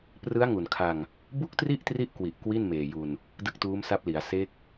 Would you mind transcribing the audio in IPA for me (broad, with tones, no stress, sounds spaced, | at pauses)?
p r ɯ˦˥ a̯ ŋ u˨˩ n kʰ a˧ ŋ | b u˥˩ k̚ t r i˥˩ ʔ t r i˦˥ ʔ k w i˨˩ ʔ k w i˥˩ n m eː˨˩ j u˧ n | d ɯ˥˩ k̚ t uː˦˥ m s a˦˥ p̚ l i˩˦ a̯ s e˦˥ k̚